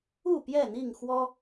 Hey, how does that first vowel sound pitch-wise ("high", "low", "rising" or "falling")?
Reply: falling